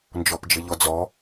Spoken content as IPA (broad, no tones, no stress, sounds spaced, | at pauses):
n d͡ʒ ɔ p d͡ʒ ɘ ʎ ɔ d͡z ɔ